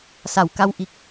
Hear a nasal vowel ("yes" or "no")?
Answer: no